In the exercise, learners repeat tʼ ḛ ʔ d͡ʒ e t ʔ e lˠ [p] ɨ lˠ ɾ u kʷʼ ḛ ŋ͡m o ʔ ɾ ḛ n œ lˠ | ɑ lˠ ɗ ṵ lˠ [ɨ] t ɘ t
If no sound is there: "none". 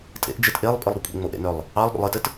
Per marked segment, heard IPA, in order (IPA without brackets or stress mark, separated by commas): pʼ, ɨ